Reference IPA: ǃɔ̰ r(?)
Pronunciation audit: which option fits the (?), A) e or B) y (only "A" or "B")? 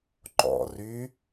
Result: B